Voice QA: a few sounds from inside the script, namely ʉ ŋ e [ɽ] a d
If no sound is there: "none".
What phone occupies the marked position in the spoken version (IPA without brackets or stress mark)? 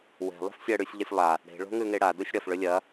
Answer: ɽ